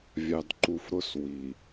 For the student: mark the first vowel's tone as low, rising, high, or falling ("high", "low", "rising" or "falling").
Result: low